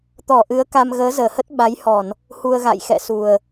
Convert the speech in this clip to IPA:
t̪ ɔ˧˩ ʔ ɨ˨˦ ə̯ k a˧ m ɣ əː˨˦ z əː˧˩ h ə˦˥ t̚ ɓ a˨˦ j h ɔ˧˩˨ n | h u˧ ə̯ ɣ a̰˧˨ j x ɛ̰˧˨ s u˨˩ ə̯

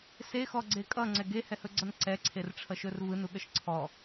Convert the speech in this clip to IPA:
s e x ɔ ɡ͡ǀ e kʼ ʌ ŋ͡ǀ ɛ ɡ e h ɛ h ɵ ɡ͡ǀ ʌ n ǀ ɛ ǀʰ e r ʈ͡ʂʰ ʌ ʃ ɵ r v ɯ n u ɠ ə ʃ ǀʰ ɔ

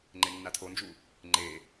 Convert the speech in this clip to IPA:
ŋ͡ǃ e nː a tʰ o n d͡ʒ u | ŋ͡ǃ e

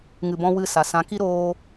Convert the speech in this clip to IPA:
ŋ ɨ˧ b ɔ̃˦ w ɨ˦˨ s a˨ s ã˨˦ k i˦ ɾ oː˧

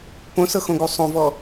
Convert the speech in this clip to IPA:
p õ s ɤ x õ ɡ u sˤ õ v ɔ

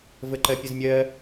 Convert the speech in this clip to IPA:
v ə ǃ ɜ pʲ ə z mʲ ɜ

